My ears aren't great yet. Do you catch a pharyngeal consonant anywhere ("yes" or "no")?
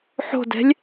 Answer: yes